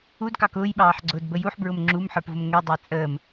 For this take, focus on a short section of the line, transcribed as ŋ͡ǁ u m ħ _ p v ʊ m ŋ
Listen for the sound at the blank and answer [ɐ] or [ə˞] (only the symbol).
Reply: ə˞